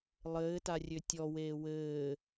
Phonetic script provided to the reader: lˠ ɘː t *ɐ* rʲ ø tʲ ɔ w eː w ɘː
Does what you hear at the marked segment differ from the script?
yes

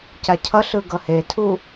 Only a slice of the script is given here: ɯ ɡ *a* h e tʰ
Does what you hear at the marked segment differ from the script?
yes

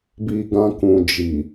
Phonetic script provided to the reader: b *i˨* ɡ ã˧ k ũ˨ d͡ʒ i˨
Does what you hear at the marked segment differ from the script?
no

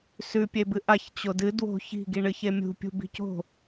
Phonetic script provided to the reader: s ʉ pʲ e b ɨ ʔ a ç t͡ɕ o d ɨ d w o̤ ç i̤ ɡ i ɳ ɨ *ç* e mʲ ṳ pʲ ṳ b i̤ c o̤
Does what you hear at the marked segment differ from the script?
no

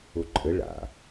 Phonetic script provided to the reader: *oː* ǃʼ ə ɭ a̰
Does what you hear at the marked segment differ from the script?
yes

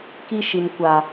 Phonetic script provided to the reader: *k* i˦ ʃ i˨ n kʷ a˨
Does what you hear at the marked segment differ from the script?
no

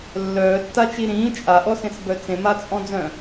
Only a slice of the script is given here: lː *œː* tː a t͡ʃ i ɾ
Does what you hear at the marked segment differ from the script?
no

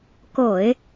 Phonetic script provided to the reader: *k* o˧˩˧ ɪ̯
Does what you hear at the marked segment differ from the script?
no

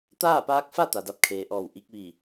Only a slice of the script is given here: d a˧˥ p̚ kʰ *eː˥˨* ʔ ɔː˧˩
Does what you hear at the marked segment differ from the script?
yes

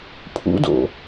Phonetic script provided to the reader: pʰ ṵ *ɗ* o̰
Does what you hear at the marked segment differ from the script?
yes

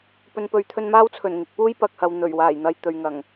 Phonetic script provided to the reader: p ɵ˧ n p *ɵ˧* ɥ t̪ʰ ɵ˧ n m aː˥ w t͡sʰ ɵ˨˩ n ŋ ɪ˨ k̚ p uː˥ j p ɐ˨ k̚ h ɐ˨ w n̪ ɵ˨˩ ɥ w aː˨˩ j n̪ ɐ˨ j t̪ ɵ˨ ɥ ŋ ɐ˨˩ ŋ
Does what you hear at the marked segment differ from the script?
no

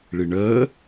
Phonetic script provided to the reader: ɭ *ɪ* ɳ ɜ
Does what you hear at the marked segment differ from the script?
no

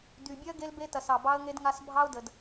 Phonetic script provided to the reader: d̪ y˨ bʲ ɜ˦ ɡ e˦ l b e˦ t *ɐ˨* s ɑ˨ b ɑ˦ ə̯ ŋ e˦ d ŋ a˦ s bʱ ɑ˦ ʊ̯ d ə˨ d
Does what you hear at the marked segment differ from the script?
no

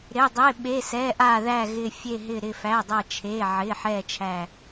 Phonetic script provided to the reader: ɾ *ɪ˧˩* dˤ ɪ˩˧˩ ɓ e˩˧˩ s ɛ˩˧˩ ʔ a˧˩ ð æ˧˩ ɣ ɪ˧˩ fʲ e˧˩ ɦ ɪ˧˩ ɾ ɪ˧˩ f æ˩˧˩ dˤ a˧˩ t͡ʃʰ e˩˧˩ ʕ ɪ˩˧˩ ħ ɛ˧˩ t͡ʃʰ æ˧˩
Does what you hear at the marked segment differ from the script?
yes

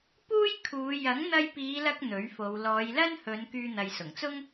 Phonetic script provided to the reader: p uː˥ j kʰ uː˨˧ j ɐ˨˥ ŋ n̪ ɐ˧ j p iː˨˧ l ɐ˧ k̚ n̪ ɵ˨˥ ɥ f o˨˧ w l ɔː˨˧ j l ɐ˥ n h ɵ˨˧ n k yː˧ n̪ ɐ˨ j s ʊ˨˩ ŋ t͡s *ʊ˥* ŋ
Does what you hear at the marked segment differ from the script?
no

